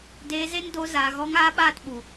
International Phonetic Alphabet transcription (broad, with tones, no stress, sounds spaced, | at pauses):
d eː˧ z e˦ n d o˧ z aː˨ ɣ ɔ˧ ŋ aː˧ ɓ aː˦˨ t ɓ u˨